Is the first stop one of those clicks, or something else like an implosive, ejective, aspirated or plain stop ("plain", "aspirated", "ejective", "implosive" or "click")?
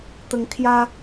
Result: plain